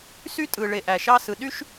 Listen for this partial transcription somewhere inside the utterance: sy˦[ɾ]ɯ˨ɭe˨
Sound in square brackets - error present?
yes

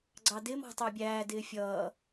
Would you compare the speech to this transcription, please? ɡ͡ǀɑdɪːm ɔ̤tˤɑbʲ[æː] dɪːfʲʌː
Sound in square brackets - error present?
no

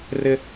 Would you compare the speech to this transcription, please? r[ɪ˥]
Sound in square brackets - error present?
no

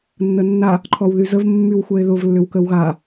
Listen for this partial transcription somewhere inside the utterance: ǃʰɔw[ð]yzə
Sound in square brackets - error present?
no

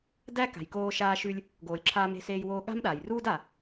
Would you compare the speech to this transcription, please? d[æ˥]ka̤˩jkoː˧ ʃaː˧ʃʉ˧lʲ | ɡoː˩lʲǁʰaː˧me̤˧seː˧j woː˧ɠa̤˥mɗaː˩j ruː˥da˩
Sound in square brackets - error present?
no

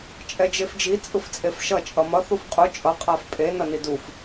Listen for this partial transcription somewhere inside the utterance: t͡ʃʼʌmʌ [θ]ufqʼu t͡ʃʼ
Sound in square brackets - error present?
no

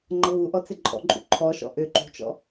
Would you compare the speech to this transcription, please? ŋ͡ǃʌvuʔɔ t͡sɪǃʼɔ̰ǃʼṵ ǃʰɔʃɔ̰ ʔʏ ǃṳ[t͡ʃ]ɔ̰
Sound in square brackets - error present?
no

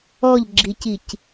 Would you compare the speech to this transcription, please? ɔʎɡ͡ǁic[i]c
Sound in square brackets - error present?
no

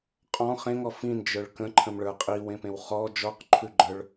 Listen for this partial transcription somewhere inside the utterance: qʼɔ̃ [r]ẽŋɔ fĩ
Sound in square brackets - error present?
yes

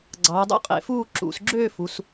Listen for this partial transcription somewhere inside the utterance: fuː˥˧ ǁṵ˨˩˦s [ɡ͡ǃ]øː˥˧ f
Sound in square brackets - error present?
yes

